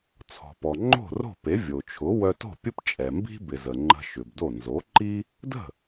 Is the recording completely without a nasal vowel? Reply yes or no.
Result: yes